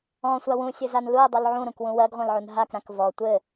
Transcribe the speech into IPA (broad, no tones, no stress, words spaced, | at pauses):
ɔ̃sʷa wũsʲɘzan luə̯dˤul ʕũɾũkwũ wɜɡʁʷãlʕun ɦakɾãk vɔ tʷɘ